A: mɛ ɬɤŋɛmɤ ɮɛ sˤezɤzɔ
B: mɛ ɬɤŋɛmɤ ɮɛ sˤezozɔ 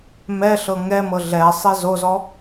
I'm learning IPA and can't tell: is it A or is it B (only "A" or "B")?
B